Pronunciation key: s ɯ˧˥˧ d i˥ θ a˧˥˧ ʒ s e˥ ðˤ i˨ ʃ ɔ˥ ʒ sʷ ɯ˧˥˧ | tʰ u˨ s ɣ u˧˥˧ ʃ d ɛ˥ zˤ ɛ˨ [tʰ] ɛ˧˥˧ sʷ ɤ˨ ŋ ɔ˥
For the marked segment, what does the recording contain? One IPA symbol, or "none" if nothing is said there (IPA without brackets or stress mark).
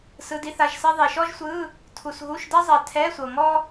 tʰ